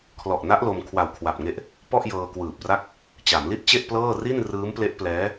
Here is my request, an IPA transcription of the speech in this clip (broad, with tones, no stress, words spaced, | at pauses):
kʰlɔ˨˩ʔna˦˥ʔ lo˧m kʰwa˨˩wkʰwa˨˩p̚ŋe˦˥ʔ | pɔ˥˩ʔ jɤː˧kwɯː˨˩p̚ra˥˩k̚ | t͡ɕa˩˦mli˥˩t̚t͡ɕe˥˩ʔplɤː˥˩ ri˥˩n rɯː˦˥mple˦˥ʔplɛː˦˥